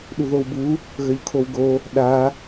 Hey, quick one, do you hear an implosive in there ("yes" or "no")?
yes